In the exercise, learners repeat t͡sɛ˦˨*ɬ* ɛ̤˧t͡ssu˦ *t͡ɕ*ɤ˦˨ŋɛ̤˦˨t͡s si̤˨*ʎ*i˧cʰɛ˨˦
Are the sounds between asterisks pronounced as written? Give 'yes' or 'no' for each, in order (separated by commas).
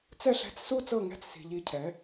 yes, no, yes